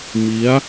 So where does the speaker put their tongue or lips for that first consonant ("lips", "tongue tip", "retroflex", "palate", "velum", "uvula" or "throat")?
lips